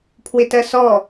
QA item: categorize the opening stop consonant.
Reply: aspirated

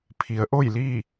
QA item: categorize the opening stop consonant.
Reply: aspirated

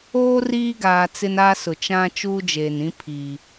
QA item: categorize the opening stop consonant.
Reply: plain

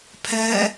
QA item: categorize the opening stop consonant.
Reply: aspirated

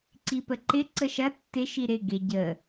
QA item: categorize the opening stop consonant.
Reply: click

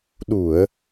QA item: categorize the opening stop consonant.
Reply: implosive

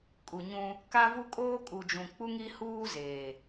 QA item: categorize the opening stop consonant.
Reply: ejective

